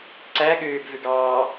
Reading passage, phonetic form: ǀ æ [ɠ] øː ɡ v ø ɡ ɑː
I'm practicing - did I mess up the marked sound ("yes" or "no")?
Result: no